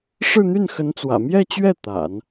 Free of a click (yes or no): yes